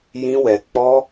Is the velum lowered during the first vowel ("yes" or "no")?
yes